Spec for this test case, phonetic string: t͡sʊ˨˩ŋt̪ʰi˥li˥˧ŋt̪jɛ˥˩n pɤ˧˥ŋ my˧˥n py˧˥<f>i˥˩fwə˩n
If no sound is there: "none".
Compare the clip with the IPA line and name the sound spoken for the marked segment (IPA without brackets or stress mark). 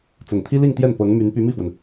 m